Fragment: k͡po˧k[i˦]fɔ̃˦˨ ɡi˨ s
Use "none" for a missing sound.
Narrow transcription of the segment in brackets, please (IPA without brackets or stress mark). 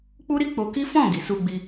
i˦